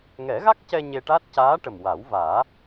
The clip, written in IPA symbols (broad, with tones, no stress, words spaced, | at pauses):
ŋɛ˨˩˦ɣa˦˥k̚cɛ˧ ɲe˧ʈa˦˥t̚ caː˧˥ʈə˨˩m wa˨˩˦wvaː˨˩˦